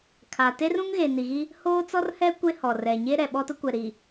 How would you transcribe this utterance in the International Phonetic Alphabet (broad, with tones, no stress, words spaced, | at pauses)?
kʰa˨ te˦rũ˦ŋɣe˨ ni˨ɣi˦ | hoː˦t͡sɔ˦rhɛ˦ kʷe˦hɔ˨ rɛ˨ɲe˦ ɾɛ˨ɓɔ˦tʊ˦kʷɛ˨ ɾi˨